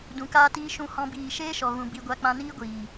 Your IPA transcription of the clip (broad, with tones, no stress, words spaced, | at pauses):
dũ˨kaː˧tiː˧ ʃũ˦hɔ̃˦biː˦˨ ʃeː˦ʃɔ˨ɣũ˨ bi˧ ɡʷa˧k͡pã˧niː˦ɡʷiː˨